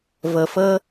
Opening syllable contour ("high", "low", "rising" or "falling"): low